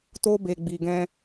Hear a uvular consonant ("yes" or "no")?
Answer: no